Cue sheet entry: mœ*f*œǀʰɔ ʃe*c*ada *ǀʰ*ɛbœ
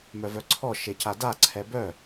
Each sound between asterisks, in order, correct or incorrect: incorrect: v, correct, correct

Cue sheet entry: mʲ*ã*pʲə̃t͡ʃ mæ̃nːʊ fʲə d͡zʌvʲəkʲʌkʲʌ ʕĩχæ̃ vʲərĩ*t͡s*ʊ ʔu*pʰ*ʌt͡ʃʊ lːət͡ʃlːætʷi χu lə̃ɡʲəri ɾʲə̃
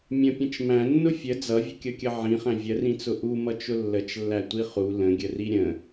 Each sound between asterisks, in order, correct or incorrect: incorrect: ə̃, correct, incorrect: m

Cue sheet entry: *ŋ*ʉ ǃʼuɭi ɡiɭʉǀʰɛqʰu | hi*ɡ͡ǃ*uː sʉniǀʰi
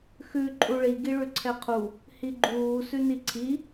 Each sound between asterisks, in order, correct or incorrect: incorrect: x, correct

